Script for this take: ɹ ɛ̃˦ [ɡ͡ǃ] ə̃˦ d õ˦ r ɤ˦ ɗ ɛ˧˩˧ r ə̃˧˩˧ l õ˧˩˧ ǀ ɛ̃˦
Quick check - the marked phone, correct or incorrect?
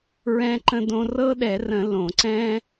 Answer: incorrect